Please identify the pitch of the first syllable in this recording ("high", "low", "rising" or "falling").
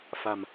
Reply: low